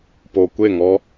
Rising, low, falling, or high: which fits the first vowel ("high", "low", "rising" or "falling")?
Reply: low